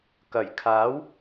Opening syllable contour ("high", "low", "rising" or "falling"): low